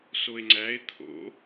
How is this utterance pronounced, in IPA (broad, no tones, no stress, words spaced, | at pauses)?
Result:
soe̯ŋ͡ǀæe̯ t̪ʰo̰